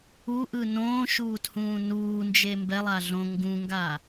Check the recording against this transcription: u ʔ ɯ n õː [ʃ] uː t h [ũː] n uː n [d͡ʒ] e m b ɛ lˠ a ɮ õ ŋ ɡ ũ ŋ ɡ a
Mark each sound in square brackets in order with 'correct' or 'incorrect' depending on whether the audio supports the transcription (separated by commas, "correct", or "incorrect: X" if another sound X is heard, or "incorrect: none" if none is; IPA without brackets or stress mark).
correct, correct, correct